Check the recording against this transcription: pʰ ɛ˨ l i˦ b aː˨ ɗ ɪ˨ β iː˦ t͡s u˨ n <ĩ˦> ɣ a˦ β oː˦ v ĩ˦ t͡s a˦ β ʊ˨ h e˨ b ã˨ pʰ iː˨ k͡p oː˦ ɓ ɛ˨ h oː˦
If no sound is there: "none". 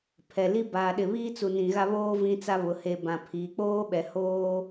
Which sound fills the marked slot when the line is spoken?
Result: ĩ˨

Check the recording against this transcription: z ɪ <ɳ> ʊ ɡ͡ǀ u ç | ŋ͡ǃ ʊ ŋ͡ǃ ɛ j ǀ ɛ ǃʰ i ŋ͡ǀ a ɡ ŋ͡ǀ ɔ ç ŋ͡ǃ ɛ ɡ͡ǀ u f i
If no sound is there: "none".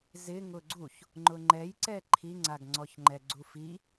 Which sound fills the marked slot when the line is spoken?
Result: ŋ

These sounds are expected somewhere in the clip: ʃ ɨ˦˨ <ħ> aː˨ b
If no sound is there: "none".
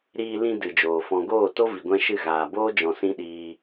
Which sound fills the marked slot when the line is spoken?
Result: ɣ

